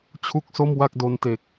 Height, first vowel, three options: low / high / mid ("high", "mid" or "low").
high